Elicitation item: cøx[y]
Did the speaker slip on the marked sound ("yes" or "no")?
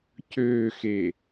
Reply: yes